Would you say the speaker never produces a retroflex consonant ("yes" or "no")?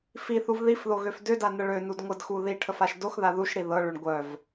no